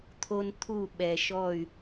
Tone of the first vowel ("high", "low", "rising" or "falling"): high